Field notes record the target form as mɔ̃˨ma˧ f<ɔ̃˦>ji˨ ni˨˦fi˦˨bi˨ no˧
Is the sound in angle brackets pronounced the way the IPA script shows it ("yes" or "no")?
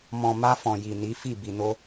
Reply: no